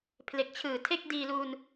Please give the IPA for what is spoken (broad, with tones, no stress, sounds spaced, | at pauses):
pʰ l e˨˩ k̚ t͡ɕʰ ɯː˨˩ tʰ e˥˩ k̚ d iː˧ l uː˧ n